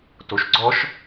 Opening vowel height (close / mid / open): mid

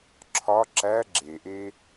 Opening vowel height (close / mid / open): open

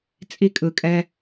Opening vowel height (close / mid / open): close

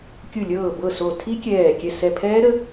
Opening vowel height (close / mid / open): close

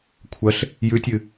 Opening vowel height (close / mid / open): open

